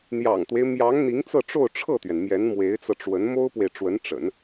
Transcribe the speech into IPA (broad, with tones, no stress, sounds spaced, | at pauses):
n̪ j ɑ̰˨˩ ŋ t̪ w e˦ ɪ̯ m j ɑ˧˥ ŋ n̪ i˧˥ ŋ t͡s ɤ˥˧ ʈ͡ʂ o˥˧ ʊ̯ ʈ͡ʂʰ ɤ˥˩ t̪ ɥ ɛ˩ n m j ɛ˧˥ n m w e˧˥ ɪ̯ t͡s ɤ˧ ʈ͡ʂ w ə˧˥ n m o˥ ʊ̯ p w e˨ ɪ̯ ʈ͡ʂ w ə˧˥ n ʈ͡ʂ ə̰˨˩˦ n